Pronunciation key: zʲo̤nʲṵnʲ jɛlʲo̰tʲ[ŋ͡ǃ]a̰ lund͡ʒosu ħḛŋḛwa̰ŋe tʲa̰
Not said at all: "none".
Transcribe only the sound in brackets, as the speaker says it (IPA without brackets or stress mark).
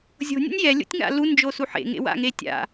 ŋ